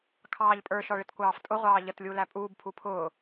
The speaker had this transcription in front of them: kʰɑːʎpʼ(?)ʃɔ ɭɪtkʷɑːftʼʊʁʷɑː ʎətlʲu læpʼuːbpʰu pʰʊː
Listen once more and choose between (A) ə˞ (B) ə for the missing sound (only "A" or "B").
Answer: A